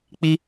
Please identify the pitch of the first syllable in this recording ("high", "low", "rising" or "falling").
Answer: high